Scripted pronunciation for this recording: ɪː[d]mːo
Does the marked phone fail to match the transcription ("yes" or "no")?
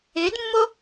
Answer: no